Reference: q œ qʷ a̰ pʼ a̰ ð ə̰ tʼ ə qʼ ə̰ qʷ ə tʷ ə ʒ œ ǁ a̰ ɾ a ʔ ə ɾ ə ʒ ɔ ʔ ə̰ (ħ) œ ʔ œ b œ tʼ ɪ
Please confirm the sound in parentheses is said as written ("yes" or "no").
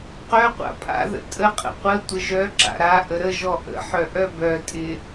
yes